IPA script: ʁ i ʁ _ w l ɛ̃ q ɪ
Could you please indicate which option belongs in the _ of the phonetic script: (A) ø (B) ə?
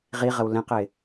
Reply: B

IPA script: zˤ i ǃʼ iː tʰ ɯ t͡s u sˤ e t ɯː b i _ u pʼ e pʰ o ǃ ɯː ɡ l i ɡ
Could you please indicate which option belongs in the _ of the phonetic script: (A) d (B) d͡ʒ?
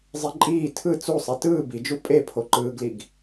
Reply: B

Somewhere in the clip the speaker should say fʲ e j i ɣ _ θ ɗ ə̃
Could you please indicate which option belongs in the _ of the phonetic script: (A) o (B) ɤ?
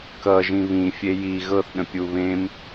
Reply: B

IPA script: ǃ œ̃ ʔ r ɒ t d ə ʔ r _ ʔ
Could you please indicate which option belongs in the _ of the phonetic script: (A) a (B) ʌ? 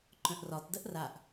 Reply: A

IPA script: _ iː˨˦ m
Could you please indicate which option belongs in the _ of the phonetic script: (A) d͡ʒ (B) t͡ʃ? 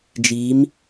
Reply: A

